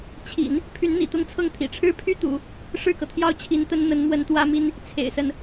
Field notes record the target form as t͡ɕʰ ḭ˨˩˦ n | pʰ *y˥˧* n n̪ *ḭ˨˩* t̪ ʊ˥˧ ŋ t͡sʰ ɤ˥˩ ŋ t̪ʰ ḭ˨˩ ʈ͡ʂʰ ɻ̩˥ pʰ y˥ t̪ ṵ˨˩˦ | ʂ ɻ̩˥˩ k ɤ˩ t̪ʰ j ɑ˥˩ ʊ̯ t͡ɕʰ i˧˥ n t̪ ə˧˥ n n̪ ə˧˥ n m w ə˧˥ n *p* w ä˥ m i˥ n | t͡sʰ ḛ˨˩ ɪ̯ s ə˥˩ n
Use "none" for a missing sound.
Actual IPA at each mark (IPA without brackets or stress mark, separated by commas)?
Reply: y˧˥, ḭ˨˩, t̪